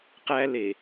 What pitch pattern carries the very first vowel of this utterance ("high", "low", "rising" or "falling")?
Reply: high